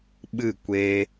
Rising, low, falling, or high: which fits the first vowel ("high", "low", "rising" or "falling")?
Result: falling